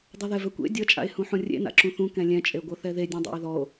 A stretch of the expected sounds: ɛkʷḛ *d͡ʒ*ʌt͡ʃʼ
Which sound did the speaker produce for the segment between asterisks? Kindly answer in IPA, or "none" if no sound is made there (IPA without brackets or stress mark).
dʲ